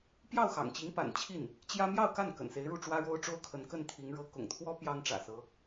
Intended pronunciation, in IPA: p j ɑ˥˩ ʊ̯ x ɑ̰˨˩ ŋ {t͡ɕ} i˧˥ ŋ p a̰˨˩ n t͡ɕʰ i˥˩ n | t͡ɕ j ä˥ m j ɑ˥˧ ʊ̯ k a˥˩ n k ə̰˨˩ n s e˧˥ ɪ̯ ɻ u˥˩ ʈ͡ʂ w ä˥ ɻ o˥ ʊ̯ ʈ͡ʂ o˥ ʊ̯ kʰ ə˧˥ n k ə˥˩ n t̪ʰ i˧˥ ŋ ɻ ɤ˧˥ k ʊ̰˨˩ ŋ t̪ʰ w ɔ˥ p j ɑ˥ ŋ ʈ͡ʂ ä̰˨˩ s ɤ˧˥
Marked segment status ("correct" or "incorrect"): correct